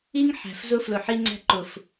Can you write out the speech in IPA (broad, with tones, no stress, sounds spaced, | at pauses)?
i˦ ŋ ħ æ̤˨ f z ʊ˦ f l ʊ˨ ħ i˦ ŋ͡ǀ æ̤˦ ǃ ʊ˨ f